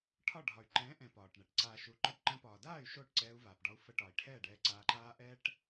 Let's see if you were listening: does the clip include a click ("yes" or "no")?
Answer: yes